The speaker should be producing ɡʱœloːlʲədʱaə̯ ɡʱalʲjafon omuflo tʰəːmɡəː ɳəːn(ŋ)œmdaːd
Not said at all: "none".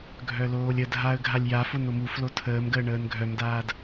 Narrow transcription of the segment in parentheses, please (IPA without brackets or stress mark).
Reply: ɡʱ